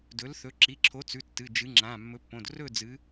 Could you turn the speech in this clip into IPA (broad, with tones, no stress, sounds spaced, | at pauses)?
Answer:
d ɵ˨˥ l θ ɵ˨˥ ǁ i˩˧˩ ǁʰ o˨˥ t͡s ʉ˩˧˩ tː ɨ˩˧˩ d͡ʒ ɨ˨˥ ŋ͡ǁ ã˩˧˩ mː ɵ˨˥ pː õ˩˧˩ d r ɵ˥˨ d͡z ɨ˨˥